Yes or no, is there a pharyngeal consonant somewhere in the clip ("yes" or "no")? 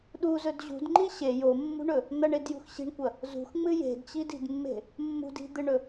no